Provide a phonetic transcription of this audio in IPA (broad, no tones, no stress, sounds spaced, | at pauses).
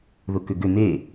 ð ʊ k ʏ ɡ ʏ n̪ e